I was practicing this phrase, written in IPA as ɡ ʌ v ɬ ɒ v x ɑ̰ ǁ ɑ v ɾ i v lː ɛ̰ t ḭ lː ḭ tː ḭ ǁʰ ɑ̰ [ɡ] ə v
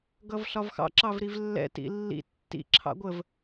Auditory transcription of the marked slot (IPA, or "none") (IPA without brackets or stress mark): ɡʷ